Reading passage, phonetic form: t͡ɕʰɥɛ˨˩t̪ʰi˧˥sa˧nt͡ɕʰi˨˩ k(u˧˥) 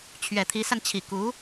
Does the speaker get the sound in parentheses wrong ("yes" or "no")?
no